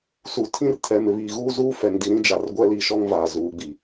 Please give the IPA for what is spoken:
s u˨ tʰ ĩ˦ r tʰ ɛ˨ m ɪ˨ β iː˨ ɣ uː˦ z uː˦ f ɛ˨ ŋ d i˨ ɾ ĩ˦ d͡ʒ a˨ r ɡʷ ɛ˦ l i˨ ʃ ɔ˦ ŋ v aː˨ z uː˨˦ ɡ͡b i˨

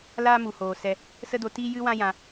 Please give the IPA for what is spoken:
l aː˦ m u˨ h oː˨ s ɛ˧ | s ə˦ d o˧ t iː˦ j ɨ˦ w ã˦ j ã˧

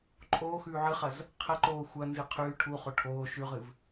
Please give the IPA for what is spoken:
ǃʼ oː x ʉː ʕ ɨ χ ɐ z | qʰ ɐ ǃ oː xʷ ɐ n z ɨ qʰ ʉː ʈʰ u χ o ʈʰ oː ʃ ʉ ʁ ɨ v

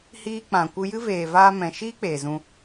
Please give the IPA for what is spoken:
h iː˧ k͡p ã˨ kʷ ɨ˧ j ɨ˦ v eː˨ v aː˧ m ɛ̃˨ ʃ iː˦ k͡p eː˨ z ũ˧

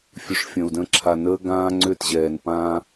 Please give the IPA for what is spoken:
fʲ ʉ˨ ʂ fʲ ə̃ː˨ u̯ d ə̃ː˦ ǁʰ a˨ n əː˦ ɡ ãː˦ ŋ͡ǀ ʏ˦˨ t ʑ ɛː˨ n p ãː˦

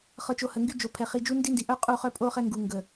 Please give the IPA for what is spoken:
χ ɤ˨ t͡ʃ o˨ h ə˨ ŋ ɡ y˦ d͡ʒ o˨ pʰ ɛ˨ χ i˨ d͡ʒ u˦ n d i˦ n d i˨ ʔ œ˦ qʼ u˦˨ χ œ˦ pʼ o˦ χ ɛ˦ ŋ ɡ u˨ ŋ ɡ ə˨

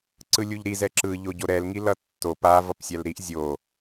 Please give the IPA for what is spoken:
ǀ ɯ lʲ u ʎ ɾ i z ɛ ǁ ɯ ʎ o ɟ o ɾ ɛ l ŋ i l ʌ tː o p a v ʌ p sʲ a l ɾ i ʔ zʲ o

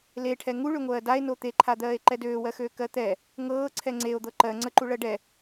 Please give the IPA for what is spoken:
l e ʈʰ ɛ ŋ u ɭ ø ŋʷ ɜː d a e̯ n o t̪ e ǃʰ a d̪ ɜː e̯ ǃ ɛ d øː w ɜ x øː k ɜ t̪ ɛ | ŋ ɤː ǀʰ ɛ ŋ͡ǀ e o̯ d̪ ɤ ǃ ɜ ŋ͡ǀ ə ǃ u ɭ ɜ ɖ ɛ

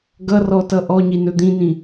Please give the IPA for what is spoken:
ɡ ʌ r ɔ t ʌ ʔ ɔ ɲ i n ɵ d̪ ĩ n ĩ

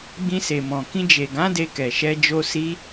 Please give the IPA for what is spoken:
ɡ͡b ĩ˧ s e˨ m ɔ̃˨ k ĩ˧ d͡ʒ e˨ ɡ ã˨˦ d e˧ k ɛ˨ ʃ ɛ˧ d͡ʒ o˧ s i˧

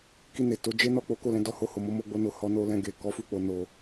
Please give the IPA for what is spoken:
k i˧ n e˨ t o˨˦ d͡ʒ e˦ n ɔ˦˨ k͡p o˨˦ k o˦˨ l ɛ̃˧ d ɔ˧ h o˧ h o˨ m o˨˦ m o˧ ɡ͡b o˧ n o˨ h ɔ˧ n o˧ l ɛ̃˧ ɡ e˨ k ɔ˨˦ f u˦˨ k͡p o˨ n o˨

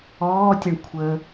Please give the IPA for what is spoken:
ɔː tʲ a ɳ kʷʰ əː

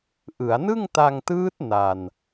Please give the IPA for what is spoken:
ʔ ɯ˩˦ a̯ n ɯ˥˩ ŋ t a˧ ŋ t ɯː˦˥ t̚ n a˧ n

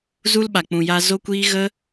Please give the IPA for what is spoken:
z u˦ l ɓ a˨ k͡p ũ˨ j a˧ z o˦ kʷ iː˦ ɣ ə˦

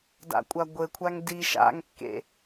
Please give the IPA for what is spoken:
d a̰ kʷʼ a ɡʷ ɘ kʷʰ a ŋ d i ʃ a̰ ŋ kː ḛ

